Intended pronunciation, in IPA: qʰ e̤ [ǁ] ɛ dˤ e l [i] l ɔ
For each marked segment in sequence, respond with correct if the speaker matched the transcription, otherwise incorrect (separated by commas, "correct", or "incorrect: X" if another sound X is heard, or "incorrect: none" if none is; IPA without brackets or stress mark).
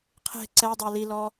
incorrect: ǀ, correct